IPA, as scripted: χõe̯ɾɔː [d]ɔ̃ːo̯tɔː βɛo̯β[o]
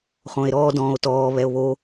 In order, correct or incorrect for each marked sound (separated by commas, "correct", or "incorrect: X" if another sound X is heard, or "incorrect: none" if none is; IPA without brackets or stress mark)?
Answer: correct, correct